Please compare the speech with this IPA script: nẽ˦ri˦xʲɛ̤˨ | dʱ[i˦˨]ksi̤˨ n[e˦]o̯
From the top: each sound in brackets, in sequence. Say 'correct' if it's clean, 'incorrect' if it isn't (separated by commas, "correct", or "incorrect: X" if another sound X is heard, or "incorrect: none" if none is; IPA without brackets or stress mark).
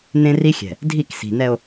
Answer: correct, incorrect: ɛ˦